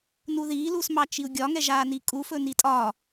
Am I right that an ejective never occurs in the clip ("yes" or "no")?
no